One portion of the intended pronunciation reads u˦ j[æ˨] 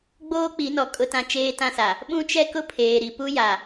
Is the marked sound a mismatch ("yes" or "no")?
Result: yes